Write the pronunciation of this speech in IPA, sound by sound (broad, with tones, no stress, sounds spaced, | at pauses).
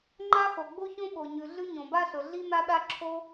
ŋ͡ǃ a˥ x o˩ ɡ͡b o˥ ç õ˥ ɓ o˩ ɲ ʉ˩ ɮ ʉ˥ ɲ õ˩ b a˥ ɬ ɵ˩ ɮ i˥ n̪ a˥ ɗ a˥ ǁʰ o˥